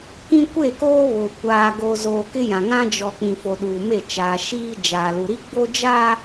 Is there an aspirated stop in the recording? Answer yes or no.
no